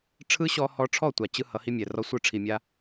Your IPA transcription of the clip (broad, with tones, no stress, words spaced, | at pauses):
ʈ͡ʂʰɯ˦ɕɔ˧hɔ˧ʈ͡ʂʰɔ˦˨ tʷa˨ t͡ɕɯ˦ hʌ˨˦hi˦mʲɛ˨rɔ˦ sʷɯ˧ʈ͡ʂʰi˨mʲa˧